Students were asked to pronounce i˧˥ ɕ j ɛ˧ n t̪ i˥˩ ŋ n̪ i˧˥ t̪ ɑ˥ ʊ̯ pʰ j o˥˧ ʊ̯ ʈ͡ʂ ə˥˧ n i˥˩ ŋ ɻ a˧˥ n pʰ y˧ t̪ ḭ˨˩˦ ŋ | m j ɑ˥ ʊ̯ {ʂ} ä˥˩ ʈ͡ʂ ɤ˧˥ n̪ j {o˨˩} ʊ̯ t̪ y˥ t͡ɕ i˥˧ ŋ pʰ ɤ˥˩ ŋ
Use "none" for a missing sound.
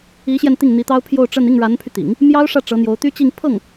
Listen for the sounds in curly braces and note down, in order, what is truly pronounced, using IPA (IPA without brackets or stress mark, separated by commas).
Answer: ʂ, o˧˥